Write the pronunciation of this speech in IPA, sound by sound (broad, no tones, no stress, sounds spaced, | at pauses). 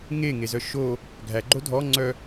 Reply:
ŋ e ŋ e z œ ʃ o | ɡʱ æ ɡ͡ǃ o dʱ ɔ ŋ͡ǀ œ